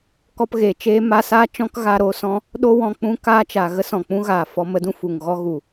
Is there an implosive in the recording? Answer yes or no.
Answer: yes